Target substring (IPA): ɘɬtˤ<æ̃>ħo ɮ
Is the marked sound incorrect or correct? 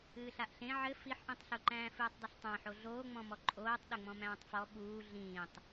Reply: correct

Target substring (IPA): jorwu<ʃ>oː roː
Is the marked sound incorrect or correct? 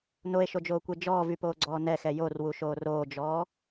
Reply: correct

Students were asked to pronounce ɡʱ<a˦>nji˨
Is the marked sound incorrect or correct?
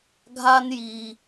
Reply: correct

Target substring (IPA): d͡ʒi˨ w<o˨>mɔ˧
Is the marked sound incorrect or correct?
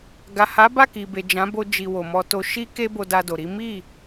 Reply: correct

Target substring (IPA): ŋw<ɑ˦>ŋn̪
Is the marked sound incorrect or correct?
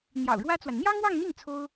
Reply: incorrect: ɑ˥˧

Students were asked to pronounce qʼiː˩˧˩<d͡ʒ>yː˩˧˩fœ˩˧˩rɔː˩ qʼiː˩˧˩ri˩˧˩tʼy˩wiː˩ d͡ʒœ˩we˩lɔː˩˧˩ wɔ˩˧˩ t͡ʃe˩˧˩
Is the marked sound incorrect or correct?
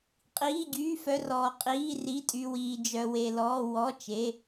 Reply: incorrect: ɟ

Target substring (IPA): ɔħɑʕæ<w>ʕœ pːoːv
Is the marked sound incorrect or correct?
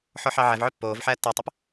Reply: incorrect: v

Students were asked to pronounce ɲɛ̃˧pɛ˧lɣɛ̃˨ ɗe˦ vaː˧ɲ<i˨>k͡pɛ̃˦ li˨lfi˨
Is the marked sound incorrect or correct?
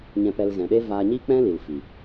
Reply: incorrect: i˦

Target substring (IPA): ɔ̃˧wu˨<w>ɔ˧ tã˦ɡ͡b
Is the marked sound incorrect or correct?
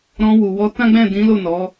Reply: correct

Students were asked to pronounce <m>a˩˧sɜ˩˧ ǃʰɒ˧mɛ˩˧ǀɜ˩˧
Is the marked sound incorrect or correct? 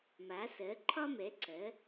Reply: correct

